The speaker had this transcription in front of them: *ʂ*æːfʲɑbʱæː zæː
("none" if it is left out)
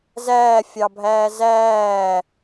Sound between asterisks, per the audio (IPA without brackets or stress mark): z